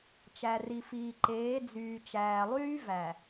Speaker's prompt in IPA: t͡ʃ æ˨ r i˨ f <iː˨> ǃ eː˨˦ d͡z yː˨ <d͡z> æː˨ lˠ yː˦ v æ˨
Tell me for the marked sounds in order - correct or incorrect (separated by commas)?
correct, incorrect